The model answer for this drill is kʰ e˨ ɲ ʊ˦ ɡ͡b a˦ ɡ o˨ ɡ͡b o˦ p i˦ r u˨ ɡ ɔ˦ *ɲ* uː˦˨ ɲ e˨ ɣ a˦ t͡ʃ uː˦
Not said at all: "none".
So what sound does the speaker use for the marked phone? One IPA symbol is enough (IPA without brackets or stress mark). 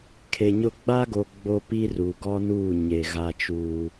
n